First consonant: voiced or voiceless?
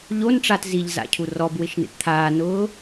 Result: voiced